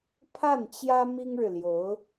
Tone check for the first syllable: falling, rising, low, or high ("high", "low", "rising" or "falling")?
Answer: falling